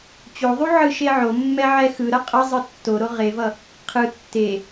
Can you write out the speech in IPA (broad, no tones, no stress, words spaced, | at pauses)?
t͡ɕoðˤu ʕɯʃeʕomːɛ ʕɛxɯɾʌ qʼʌ zˤɯtːoɾo ʁevʌ | qʰɯ tːe